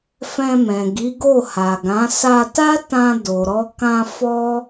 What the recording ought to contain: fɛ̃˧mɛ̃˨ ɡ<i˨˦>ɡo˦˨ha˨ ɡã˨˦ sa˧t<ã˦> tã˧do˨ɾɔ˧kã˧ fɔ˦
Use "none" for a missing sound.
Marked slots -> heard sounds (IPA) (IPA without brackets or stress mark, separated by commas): i˨˦, a˦